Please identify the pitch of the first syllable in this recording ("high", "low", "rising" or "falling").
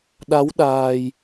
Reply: rising